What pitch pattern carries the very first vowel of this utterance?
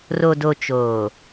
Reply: low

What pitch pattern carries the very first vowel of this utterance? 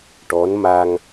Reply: rising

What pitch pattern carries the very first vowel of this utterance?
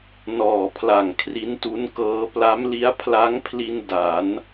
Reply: low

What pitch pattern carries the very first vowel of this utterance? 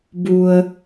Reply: low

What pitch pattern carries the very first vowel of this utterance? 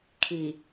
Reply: low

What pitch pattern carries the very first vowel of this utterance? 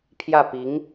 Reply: falling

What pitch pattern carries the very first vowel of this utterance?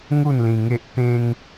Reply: falling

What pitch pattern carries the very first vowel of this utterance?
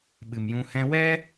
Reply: low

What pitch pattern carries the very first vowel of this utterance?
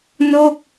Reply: falling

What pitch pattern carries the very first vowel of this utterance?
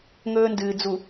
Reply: high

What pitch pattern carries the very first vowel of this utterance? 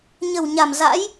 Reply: low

